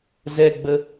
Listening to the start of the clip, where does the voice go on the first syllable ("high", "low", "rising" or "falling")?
high